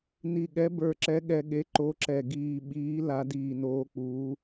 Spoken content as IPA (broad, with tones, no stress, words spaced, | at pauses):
ni˨˩ɠɛ˨˦ bə˞˨˩ǁɛ˨˦ɠɛ˨˩ɠe˨˦ ǃo˨˦ǁɛ˨˩ ɡiː˨˩ɓiː˨˦ la˨˦diː˨˩noː˨˦k͡puː˨˦